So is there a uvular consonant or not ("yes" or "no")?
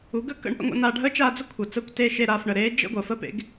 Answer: no